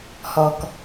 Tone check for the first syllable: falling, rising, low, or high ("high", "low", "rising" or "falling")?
low